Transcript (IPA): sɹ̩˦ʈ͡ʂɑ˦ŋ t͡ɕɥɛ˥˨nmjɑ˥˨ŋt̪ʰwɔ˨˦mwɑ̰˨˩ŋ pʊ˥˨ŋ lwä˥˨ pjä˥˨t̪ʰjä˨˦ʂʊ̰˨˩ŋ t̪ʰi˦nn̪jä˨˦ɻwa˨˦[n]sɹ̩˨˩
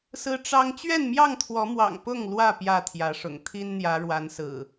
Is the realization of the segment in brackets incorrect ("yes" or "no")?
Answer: no